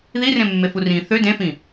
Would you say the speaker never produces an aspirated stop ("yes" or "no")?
yes